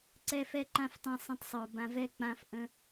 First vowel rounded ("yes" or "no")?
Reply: no